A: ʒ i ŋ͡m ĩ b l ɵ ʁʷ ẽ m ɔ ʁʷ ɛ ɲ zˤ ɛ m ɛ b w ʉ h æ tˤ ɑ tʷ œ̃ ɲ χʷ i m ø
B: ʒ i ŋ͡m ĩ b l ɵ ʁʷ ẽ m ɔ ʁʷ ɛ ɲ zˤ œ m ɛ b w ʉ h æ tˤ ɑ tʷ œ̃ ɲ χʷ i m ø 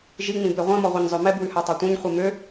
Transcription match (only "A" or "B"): B